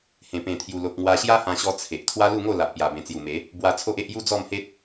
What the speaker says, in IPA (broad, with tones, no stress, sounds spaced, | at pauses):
h ẽ˨˩ p ẽ˨˩ t̪ʰ j u˨˩ l o˨ k̚ ŋ w a˧ ɕ j a˦ h ã˧ ɕ ɔ˧ t͡sʰ e˨ ʔ t̪ʰ w a˦ l u˥˧ ŋ o˥˧ l a˨ ʔ p j a˨˩ b ẽ˨˩ t͡s j u˨˩ m e˨˦ | b w a˧ t͡sʰ o˦ ʔ e˦ ʔ j u˦ d͡z ɔ˥˧ m h e˦ t̚